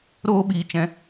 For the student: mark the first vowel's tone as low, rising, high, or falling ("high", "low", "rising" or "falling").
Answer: high